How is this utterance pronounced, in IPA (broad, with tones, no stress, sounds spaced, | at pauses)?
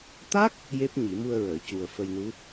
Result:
t̪ a˦˥ k̚ | j e˦˥ p̚ ɲ i˨˩˦ m u˧ ə̯ ɹ əː˨˩˨ c u˨˩ ə̯ f ə˧ j n u˧˥